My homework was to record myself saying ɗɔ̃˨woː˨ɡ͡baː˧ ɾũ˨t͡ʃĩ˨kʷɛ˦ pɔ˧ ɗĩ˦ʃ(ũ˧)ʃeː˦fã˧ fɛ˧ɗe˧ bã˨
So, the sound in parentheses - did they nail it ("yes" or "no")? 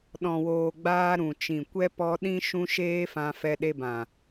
no